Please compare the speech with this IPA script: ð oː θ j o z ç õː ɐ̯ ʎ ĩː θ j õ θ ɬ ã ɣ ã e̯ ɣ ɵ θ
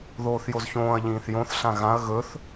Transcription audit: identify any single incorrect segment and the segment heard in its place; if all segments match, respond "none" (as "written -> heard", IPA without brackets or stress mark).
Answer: e̯ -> ɐ̯